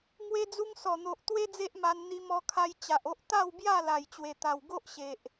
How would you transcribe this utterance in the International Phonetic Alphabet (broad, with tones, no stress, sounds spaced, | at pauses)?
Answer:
ŋ w e˧ d͡z u˧ ŋ s ɔ˨˩ n̪ o˨ ʔ t̪ w e˦ d͡z e˦ ʔ m a˧ n n̪ i˧ m ɔ˧ kʰ a˧ j t͡ɕ a˨ ʔ o˦ ʔ t̪ a˥˧ w b j a˥˧ l a˨˩ j t͡ɕ w e˨˩ t̪ a˨˩ w ɡ o˦ ʔ ɕ e˨ ʔ